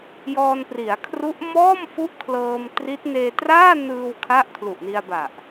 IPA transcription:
j ɔː˧ n p r i˩˦ a̯ kʰ r u˦˥ ʔ m ɔː˥˩ m f u˦˥ ʔ kʰ l ɤː˧ m t r i˦˥ t̚ n eː˧ t r aː˥˩ n ɯː˧ w kʰ a˥˩ ʔ kʰ l u˨˩ ʔ n i˧ a̯ b a˨˩ ʔ

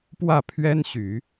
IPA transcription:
p w ä˥˩ pʰ ɥ ɛ˥ n ɕ y˨˩˦

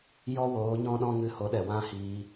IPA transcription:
j ɔ˦ w oː˨˦ ɲ ɔ̃˦ ɗ ɔ̃˦ ŋ ɨ˧ h o˨˦ ɗ ɛ˨ w ã˦ h iː˧

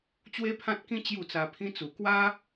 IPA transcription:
t͡ɕ w e˦ pʰ ã˦ t̚ k ĩ˦ t͡ɕ j u˥˧ t͡s a˧ pʰ ĩ˧ t͡s u˨˩ k w a˦

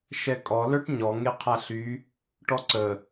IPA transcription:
ʃ ɛ kʼ ɔ l œ ʈ ɲ ɔ ŋ e qʰ a ɬ y | ʈ ɔ ǀ ə

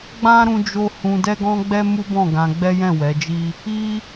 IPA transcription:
ɡ͡b ã˦ ɾ ũ˧ d͡ʒ o˧ h ũ˧ d ɛ˦ ɡ ɔ̃˦ ɡ͡b ɛ˦ m u˦ b ɔ̃˦˨ ɡ ã˧ ɡ͡b ɛ˦ j ɛ̃˦˨ w ɛ˨˦ d͡ʒ i˦ | i˦

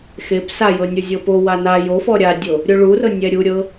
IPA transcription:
x e p s a j ɤ nʲ o zʲ ɤ p o w a n a j o f ɔ ɾʲ a dʲ o | ɾʲ o ɭ u r ɤ nʲ ɛ ɾʲ u ɾʲ ɤ

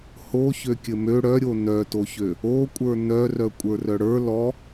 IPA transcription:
h o ç ø kʲ ɘ m ø ɽ œ ɾʲ o n œ t o ç ø | o kʷʼ ə˞ n œ r œ kʷʼ ə˞ r œ ɽ ə˞ l ɔ

